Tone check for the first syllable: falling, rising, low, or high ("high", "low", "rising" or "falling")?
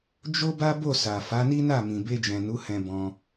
high